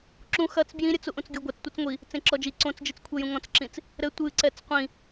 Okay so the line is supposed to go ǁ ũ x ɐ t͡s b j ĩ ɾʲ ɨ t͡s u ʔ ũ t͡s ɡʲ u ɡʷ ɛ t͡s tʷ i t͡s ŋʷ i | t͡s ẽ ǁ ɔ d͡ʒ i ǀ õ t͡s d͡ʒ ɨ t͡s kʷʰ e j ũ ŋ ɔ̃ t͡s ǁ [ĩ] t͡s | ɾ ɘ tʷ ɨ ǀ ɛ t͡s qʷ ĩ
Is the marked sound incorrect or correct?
correct